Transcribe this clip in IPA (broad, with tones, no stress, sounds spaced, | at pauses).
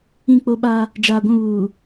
ĩ˦˨ k͡p o˦ ɓ a˦ | d͡ʒ aː˨ ɡʷ ũ˦˨ β uː˨